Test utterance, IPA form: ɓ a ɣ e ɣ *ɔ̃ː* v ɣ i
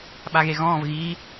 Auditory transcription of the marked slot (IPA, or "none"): ɔ̃ː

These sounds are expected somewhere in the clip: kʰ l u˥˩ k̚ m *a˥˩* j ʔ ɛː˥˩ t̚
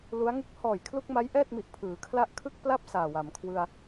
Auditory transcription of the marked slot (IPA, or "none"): a˦˥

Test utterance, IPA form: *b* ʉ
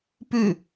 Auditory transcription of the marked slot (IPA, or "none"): p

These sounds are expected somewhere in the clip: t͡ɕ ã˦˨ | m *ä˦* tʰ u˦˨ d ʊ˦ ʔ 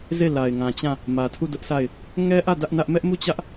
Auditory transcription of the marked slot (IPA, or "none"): ä˨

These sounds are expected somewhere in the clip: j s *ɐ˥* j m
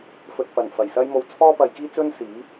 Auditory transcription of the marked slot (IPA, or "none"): ɐ˥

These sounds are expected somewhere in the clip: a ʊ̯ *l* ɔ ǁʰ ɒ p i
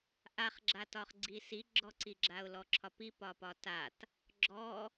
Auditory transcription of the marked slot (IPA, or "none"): l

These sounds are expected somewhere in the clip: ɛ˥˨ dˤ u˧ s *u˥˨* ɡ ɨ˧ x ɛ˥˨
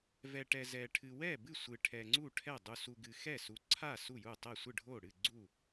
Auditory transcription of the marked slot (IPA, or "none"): u˧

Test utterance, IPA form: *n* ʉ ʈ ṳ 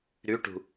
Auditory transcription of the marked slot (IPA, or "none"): ɾ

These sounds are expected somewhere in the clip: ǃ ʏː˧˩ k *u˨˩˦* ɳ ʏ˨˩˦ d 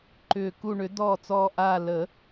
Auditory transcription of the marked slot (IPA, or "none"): u˧˩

